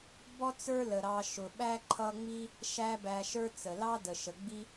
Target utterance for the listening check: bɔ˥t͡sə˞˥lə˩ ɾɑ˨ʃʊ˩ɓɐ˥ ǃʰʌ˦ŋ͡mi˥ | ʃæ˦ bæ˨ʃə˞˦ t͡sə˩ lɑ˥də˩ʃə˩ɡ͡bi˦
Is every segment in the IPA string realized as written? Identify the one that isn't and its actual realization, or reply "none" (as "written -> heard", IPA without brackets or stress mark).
ɐ˥ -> æ˥